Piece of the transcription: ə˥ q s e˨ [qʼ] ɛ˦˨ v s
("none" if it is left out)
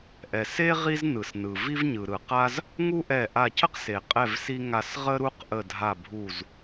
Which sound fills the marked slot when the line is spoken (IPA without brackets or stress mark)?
qʼ